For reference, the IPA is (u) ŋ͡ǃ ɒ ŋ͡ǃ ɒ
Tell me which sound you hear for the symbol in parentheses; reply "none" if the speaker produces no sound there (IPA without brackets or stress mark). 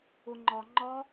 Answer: o